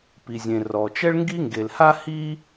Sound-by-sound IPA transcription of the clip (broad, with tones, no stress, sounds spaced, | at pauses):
p i˩ zʲ ẽ˩ r ɔ˩ t͡ʃ ɛ˥ ɭ ŋ ɡ i˥ ŋ ɡ e˩ l h a˥ h i˥